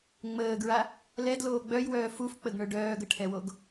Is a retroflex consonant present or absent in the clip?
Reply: present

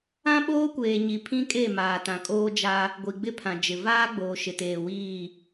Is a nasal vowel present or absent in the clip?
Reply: present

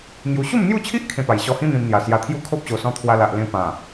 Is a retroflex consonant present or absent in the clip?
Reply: absent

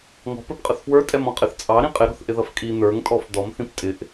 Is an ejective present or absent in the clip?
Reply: present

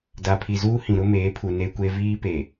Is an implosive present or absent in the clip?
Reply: absent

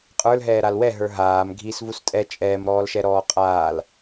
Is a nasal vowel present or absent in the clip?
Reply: absent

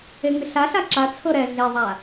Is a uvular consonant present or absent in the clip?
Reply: absent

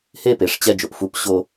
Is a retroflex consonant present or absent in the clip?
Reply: present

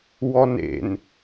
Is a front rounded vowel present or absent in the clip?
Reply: absent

